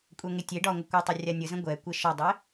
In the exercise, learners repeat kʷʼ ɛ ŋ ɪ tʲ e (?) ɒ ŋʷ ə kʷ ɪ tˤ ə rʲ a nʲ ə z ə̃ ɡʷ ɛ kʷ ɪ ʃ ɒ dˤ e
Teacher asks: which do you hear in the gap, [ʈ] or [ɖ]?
ɖ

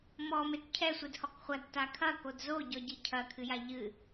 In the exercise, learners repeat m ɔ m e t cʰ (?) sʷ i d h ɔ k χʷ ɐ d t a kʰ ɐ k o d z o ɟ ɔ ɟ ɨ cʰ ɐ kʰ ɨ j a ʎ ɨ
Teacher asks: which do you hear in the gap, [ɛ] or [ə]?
ɛ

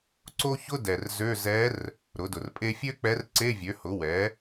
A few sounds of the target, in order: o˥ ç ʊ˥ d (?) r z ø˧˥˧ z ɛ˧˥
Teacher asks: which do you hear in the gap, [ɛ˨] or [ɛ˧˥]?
ɛ˨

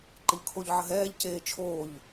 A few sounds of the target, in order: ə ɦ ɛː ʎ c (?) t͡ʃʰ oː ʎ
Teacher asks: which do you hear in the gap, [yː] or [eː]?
eː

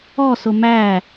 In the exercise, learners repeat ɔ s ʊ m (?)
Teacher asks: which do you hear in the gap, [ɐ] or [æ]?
æ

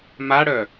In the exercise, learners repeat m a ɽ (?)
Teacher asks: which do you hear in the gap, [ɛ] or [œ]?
œ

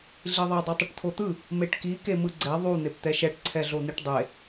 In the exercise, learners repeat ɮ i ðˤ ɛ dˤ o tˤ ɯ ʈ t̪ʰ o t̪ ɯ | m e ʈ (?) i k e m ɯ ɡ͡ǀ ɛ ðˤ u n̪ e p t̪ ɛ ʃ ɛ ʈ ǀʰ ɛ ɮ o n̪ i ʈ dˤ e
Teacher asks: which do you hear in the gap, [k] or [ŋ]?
k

